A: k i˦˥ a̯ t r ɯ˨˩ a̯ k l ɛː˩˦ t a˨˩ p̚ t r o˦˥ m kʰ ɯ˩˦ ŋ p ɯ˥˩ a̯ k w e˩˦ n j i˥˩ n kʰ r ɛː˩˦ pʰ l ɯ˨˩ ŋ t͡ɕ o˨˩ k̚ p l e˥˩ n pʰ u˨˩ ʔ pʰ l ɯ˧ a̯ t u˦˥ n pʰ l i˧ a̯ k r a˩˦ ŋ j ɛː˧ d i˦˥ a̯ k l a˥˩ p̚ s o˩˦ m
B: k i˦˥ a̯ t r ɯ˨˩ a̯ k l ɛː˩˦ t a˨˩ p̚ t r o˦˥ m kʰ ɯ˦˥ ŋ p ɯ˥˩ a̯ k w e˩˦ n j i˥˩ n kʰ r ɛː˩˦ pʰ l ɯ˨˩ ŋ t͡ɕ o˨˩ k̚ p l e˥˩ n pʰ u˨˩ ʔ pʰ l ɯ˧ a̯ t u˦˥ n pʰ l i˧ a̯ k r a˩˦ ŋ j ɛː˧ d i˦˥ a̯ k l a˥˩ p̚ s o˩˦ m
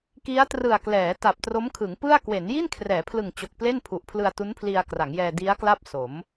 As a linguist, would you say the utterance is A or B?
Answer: A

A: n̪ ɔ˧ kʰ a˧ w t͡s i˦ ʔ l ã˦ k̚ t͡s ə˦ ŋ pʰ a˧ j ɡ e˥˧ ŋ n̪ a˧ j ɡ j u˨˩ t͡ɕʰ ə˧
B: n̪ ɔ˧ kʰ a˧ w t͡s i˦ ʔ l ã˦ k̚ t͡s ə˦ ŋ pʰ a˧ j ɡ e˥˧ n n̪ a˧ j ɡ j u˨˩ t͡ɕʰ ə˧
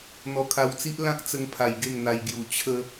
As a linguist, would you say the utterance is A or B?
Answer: A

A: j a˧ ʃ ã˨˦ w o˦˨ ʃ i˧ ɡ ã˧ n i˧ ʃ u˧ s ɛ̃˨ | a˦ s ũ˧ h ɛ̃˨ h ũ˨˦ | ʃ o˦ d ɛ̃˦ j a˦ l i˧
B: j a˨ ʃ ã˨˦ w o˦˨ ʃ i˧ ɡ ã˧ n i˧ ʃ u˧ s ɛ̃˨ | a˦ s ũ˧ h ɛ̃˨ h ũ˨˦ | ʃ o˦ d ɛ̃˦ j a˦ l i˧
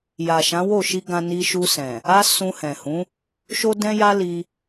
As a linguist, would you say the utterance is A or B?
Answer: B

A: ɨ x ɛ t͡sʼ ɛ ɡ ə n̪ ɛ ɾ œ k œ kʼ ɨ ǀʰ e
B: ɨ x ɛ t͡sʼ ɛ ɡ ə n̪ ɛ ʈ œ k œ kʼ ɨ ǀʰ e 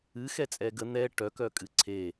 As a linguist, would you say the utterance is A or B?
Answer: B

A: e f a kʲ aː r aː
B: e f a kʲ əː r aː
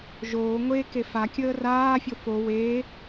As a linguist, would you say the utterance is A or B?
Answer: B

